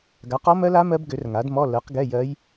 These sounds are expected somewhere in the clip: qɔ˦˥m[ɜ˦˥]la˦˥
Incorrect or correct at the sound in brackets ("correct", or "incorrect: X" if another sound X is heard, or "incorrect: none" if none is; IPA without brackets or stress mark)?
correct